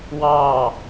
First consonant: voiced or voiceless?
voiced